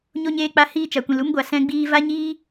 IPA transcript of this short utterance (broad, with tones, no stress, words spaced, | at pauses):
ɲo˧ɲeː˧k͡pa˧ hiː˧t͡ʃa˨kʷĩ˨l u˧mɡʷa˨ sɛ̃˧ɡ͡biː˧ va˦ɲiː˦